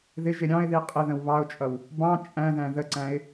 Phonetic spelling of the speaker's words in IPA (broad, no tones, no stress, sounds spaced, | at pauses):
ð ɪ ʒ ɪ ɾʲ ɑ̃ ɪ̯ ð i qʼ ɪ ð ə̃ w β ɑ ʊ̯ t͡ʃʼ ʌ w | b ɑ̃ t͡ʃʼ æ̃ ð æ̃ ð ə ǀ æ̃ ɪ̯